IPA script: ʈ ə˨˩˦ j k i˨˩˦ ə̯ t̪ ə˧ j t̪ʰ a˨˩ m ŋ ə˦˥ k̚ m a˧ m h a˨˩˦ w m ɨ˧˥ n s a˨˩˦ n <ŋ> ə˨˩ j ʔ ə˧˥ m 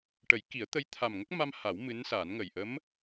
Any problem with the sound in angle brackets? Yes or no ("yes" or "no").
no